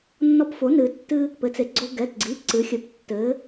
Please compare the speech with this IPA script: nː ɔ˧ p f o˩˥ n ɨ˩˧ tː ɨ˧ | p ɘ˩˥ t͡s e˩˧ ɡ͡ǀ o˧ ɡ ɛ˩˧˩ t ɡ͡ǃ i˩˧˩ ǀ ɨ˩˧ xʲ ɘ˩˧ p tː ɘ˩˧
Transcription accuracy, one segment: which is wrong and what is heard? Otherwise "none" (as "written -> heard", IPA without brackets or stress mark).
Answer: ɡ͡ǃ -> ɡ͡ǀ